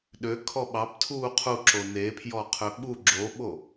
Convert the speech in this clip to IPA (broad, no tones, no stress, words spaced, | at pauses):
ɗøkʰɔ ɓɑptʰuː qʰuǁo nepʰjɔqʰø ɓu ɡ͡ǁoɓo